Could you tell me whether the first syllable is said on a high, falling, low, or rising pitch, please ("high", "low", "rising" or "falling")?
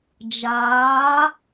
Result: rising